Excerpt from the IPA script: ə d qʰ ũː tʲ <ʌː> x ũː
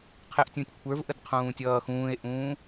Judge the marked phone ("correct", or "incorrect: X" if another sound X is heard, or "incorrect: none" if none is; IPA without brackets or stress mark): correct